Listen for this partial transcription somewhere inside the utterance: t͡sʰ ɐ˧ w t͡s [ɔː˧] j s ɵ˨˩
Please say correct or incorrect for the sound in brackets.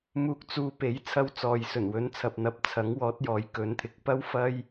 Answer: incorrect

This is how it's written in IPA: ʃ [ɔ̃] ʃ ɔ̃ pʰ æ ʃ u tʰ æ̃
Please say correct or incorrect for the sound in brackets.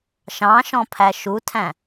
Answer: incorrect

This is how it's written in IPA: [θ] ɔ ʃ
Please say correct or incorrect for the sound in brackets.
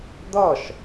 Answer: incorrect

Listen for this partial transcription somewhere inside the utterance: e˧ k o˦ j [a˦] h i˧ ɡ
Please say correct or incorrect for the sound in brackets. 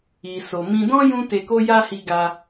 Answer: correct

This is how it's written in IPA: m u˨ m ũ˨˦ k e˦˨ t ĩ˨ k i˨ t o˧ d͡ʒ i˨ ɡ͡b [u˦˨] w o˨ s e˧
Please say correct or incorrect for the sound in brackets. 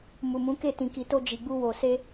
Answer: incorrect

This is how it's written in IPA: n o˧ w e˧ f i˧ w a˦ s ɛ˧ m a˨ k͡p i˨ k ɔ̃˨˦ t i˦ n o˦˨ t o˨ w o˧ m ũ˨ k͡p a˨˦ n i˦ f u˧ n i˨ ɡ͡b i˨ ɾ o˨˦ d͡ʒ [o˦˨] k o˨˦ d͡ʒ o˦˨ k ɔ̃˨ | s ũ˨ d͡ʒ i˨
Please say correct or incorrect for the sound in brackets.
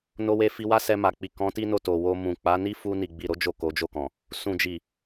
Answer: correct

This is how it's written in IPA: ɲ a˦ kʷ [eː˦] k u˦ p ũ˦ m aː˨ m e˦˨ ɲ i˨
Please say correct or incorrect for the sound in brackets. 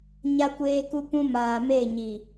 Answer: correct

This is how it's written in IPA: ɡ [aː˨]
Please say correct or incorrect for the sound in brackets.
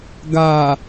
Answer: correct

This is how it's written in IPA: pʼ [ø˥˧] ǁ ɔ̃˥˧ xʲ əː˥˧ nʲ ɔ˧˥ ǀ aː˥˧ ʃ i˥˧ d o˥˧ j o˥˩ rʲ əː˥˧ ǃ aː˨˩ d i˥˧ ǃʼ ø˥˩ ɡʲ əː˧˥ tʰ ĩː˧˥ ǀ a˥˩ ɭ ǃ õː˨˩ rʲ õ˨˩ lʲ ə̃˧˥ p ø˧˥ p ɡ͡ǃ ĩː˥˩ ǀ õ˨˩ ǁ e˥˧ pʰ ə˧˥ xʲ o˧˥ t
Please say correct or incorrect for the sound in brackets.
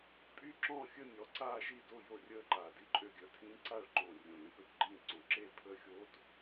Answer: incorrect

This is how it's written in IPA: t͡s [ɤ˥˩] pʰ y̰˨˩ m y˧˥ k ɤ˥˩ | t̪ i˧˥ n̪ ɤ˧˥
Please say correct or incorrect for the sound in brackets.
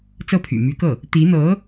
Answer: correct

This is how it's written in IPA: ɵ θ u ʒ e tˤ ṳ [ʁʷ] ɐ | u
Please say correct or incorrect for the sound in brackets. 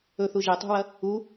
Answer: incorrect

